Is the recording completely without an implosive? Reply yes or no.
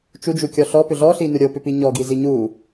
yes